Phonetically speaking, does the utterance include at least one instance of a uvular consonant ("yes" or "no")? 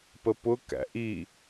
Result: no